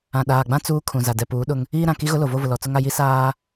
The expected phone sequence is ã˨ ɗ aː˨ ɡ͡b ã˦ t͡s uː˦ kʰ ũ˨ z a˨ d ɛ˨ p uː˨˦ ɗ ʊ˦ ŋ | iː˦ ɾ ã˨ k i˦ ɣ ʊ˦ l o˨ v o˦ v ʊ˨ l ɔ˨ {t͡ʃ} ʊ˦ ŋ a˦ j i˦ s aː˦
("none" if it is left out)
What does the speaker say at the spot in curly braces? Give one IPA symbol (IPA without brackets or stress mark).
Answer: t͡s